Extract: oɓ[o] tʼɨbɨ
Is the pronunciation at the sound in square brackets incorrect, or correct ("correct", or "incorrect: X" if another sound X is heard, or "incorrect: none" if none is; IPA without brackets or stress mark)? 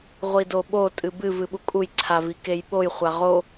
correct